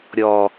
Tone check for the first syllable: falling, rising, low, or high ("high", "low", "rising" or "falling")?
low